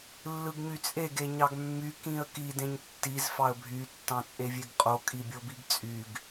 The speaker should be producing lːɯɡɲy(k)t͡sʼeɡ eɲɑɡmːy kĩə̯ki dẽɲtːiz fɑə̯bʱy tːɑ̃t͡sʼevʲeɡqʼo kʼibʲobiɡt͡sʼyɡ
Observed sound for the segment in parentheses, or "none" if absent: none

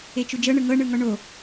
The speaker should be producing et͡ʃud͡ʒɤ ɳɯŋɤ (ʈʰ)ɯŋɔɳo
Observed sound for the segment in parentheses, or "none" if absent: ɳ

